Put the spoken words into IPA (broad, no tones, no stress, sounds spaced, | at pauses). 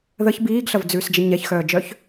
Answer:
ð ə ç b iː ɡ ɬ ɐ v d͡z ʉː s d͡ʒ ə ɲ ɛ ç x œː d͡ʒ œ ç